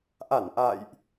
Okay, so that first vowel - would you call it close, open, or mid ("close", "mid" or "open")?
open